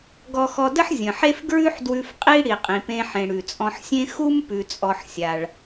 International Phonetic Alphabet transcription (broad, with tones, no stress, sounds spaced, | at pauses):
ɡ ɔ˧ x ɔ˧ d ə˥ ħ zʲ ə̃˩ ħ e˥ f ɡ ɹ ʉ˥ ħ d w ʉ˧ f qʼ i˥ ɽ i˩ qʼ ĩ˩ p ẽ˧ ħ ẽ˩ ɽ ʉ˩ t͡sʼ ɔ̃˧ ħ sʲ ẽ˥ x u˥ m p ʉ˧ t͡sʼ ɔ˧ ħ sʲ a˩ ɭ